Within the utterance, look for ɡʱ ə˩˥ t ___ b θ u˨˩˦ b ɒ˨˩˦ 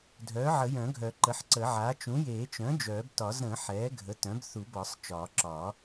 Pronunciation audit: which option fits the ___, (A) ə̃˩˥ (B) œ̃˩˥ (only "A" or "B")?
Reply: B